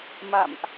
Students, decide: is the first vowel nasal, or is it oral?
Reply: oral